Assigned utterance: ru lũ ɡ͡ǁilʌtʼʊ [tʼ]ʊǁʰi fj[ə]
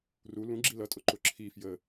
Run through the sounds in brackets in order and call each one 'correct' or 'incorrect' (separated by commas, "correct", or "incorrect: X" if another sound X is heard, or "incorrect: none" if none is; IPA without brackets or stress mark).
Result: incorrect: ǃ, correct